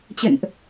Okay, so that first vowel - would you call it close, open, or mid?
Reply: mid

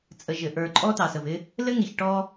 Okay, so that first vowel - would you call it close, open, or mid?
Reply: mid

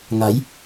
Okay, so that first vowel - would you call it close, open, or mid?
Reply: open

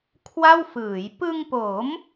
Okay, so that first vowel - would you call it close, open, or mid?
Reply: open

